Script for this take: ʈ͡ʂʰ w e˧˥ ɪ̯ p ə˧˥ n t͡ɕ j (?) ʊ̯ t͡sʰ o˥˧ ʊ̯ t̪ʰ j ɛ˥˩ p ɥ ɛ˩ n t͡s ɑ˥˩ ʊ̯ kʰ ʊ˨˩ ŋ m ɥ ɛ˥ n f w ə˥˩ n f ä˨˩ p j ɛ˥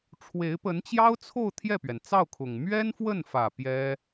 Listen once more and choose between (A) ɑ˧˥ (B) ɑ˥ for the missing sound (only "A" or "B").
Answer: B